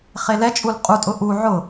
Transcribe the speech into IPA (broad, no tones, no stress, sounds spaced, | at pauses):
χ e l ɛ t͡ʃʼ u l qʼ u tʼ ʊ ʔ u ʕ ʊ